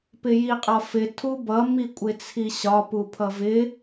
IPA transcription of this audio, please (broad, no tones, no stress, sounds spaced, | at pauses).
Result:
p ɪ j i qʼ ɒ f ɪ tʰ u b ʌ m i kʷʼ ɪ t͡sʰ i ɕ ɒ p u pʰ ʌ v ɪ